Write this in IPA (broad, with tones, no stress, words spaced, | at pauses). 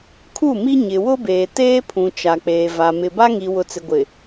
kʰu˦˨mi˦ ɲɪ˨wʊ˦beː˨ teː˦pʰũ˨ t͡ʃa˨k͡peː˨va˨ mɪ˨ba˦ŋi˨ wʊ˨t͡sɪ˨ɡʷɪ˨